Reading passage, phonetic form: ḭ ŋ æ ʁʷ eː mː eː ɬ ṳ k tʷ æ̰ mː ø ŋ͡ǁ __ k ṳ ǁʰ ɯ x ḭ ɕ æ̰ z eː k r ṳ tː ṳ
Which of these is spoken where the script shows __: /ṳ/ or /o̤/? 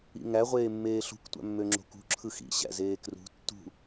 o̤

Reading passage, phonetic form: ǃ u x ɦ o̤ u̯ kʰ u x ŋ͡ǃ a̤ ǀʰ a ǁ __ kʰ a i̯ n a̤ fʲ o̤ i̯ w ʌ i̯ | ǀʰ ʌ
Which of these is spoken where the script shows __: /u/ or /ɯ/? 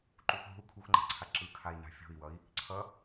ɯ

